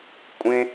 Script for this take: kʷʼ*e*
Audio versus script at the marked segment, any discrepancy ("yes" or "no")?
yes